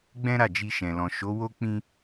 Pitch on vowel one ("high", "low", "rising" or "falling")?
high